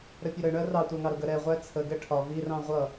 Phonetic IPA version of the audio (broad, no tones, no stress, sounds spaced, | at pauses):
ɾ ə pʲ ə ɾ ə ɳ ɜ r ɑ tʷ æ ŋ ɑ ɾ ʊ ɡ ə ɾ ɛ ʁʷ æ t͡sʰ ə ɡ ɛ ʈʰ ɒ v i r ɑ̃ ʁʷ ʌ